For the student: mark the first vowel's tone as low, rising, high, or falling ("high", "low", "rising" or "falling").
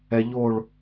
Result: low